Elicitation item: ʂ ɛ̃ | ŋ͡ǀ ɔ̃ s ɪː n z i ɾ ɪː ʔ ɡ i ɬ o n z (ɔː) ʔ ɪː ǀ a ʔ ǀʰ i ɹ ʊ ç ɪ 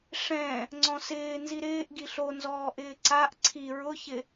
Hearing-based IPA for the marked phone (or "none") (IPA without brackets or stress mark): ɔː